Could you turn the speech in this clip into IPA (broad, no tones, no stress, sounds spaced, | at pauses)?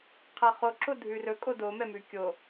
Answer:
qʰ ɛ χ o ǁ o dʱ ʉ r ɵ kʼ o d o m ɛ m ʉ kʲ o